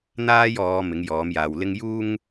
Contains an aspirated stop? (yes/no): no